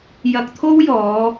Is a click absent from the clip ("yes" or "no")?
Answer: yes